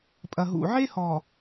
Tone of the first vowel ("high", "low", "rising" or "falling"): low